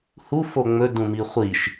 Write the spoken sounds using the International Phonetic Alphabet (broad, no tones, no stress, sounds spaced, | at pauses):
h u f o ŋ͡m ɵ d ũ m i χʷ i ʃ